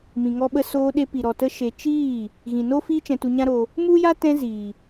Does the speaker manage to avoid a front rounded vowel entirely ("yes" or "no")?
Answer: yes